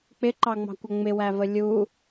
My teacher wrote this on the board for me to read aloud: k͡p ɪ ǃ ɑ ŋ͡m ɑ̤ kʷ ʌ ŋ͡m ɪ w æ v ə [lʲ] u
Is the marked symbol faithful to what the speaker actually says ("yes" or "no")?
yes